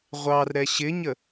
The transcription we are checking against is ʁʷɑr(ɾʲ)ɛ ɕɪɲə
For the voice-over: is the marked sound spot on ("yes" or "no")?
no